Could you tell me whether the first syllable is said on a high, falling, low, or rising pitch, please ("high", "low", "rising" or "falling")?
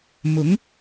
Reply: rising